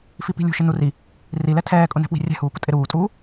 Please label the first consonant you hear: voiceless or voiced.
voiceless